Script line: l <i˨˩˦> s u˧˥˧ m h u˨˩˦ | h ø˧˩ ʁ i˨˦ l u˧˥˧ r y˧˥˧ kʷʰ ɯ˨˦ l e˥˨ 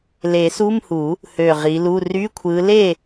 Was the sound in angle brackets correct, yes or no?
no